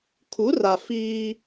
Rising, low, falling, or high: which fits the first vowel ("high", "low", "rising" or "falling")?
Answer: rising